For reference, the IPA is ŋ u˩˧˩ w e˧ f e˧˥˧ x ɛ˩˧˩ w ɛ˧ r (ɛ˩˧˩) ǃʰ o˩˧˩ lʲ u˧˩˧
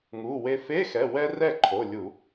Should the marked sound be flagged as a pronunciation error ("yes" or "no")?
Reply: yes